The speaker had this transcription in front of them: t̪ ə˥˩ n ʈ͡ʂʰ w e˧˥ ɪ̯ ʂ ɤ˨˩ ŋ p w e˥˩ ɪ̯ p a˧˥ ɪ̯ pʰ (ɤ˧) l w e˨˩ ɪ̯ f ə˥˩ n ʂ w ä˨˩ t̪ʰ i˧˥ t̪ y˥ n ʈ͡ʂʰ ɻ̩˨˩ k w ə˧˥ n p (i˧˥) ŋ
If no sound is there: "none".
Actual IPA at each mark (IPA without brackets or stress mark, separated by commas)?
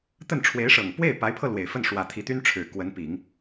ɤ˧, i˨˩˦